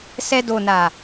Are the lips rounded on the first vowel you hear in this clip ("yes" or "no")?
no